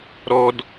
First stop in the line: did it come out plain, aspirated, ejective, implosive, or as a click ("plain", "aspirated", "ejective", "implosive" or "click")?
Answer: plain